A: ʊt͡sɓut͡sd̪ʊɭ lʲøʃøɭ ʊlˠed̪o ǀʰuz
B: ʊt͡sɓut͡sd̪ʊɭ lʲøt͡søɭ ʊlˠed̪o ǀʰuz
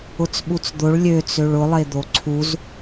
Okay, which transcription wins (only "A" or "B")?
B